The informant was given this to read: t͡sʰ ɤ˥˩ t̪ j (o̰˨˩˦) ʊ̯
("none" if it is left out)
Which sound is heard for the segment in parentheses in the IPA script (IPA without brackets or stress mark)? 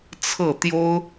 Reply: o˥